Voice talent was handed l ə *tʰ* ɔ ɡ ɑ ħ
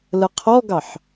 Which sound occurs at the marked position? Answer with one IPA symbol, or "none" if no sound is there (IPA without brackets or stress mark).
qʰ